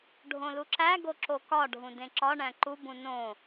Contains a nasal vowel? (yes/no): yes